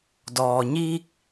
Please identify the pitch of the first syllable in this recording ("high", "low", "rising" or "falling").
low